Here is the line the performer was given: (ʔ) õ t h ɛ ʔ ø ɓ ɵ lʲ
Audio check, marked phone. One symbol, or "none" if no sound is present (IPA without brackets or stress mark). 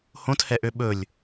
h